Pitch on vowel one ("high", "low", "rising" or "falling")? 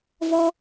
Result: high